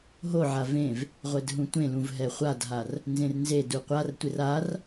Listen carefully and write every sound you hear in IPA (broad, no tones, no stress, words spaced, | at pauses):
ɦoʕa vẽv | ʁʷɛdɦũtʷẽlũv ɦɛχʷadɦar | nzẽrnzedu qʷartʷɪr ar